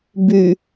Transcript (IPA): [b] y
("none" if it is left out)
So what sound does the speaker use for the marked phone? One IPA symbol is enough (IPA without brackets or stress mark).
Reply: b